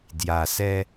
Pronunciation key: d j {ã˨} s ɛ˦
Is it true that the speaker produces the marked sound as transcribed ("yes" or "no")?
no